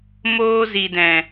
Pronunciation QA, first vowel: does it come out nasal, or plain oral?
oral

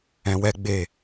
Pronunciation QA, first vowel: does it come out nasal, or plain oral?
nasal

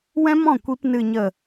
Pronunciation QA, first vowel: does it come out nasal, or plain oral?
nasal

